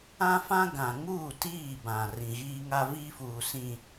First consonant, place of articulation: labial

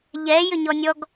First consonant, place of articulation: palatal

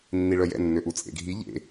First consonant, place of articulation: alveolar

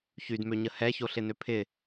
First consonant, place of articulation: palatal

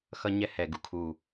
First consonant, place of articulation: velar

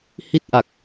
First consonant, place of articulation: glottal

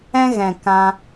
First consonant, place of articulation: velar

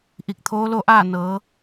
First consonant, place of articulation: glottal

